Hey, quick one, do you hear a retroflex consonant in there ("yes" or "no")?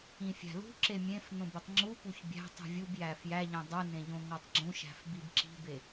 no